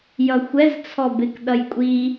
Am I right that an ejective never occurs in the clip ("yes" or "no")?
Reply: no